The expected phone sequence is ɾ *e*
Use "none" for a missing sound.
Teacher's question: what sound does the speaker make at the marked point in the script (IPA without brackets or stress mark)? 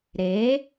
e